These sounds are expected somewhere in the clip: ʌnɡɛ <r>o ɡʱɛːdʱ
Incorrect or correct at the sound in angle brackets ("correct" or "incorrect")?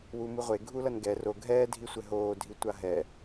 correct